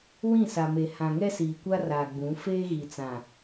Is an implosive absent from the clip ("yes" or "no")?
yes